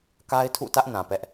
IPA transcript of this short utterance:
ka˦ɪ̯tʰṵ˦˨tä˦ʔ nã˨pɛ˦ʔ

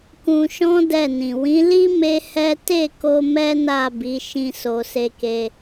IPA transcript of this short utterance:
kũ˧ʃɔ̃˦ dɛ˦˨nĩ˨ wĩ˨˦li˦ me˦hɛ˦ te˦˨ko˧ mɛ˦na˦˨ bi˨˦ʃĩ˧ so˨se˧ke˧

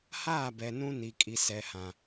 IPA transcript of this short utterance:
haː˦˨bɛ˨ nũ˦ ni˨kʼi˨ sɛ˨hã˨

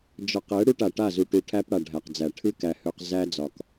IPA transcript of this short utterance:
d͡ʒɒ˨qɛ˨˦ ɽu˦ʈa˨ʈa˦˨ zu˨ ʈu˨ʈʰæ˦p ɽa˨ɖʱæ˨qd͡zæ˨ ʈʰɨ˦ kæ˨hø˨q zæ˦d͡zɒ˨k

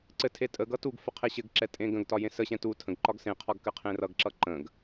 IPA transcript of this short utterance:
ǀɘtʰe tʼəɡ ʌtuɡfə qʰeɕɘɡǁɛ tʼẽɡə̃ɡtɒ jẽsəɕɛ̃ tu tʰə̃ɡǃɒɡ sẽqʰɒɡ kɘqʰẽrʌɡǁʌ ǃə̃ɡ

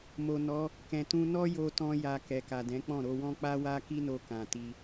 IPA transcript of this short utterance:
mo˨nɔ˨˦ | kɛ̃˨tũ˧nɔ˦ jo˧tɔ̃˧ja˨ kɛ˨ka˨dɛ̃˨˦k͡pɔ̃˦˨ ɾo˧wɔ̃˦k͡pa˦wa˦ ki˦no˧ kã˨ti˧

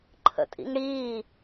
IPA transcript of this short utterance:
ǃʰə̰tʼḭŋɽiː

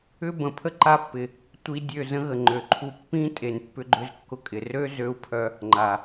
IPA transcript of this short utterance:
ʏ˦bə̃˨ pʰə˦ǃa˧pːɪ˨ | tʷi˧ dʲø˦˨zə̃˦ɣə˨ ŋ͡ǃø˨ǃʰu˧ pːĩ˦ tʼe˨npːʏ˧ɡ͡ǃʏ˧zkːʊ˧ kʼɪ˨rø˦zø˧u̯pʰœ˧ | ŋ͡ǃa˨

